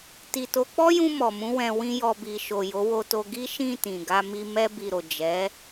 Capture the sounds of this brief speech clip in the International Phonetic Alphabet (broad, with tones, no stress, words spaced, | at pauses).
ti˨to˨˦ k͡pɔ˦jũ˧ mɔ˨mũ˨˦ wɛ̃˧wĩ˦jɔ˧ bi˨ʃo˨ jo˨˦wo˧to˧ ɡi˦ʃĩ˦˨ tĩ˨ ɡa˧mi˧ mɛ˧bi˨ɾo˨ d͡ʒɛ˨˦